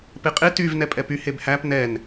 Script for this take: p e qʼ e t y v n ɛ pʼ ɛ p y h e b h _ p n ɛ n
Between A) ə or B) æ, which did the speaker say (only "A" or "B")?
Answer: B